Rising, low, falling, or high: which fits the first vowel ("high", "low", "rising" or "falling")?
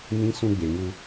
high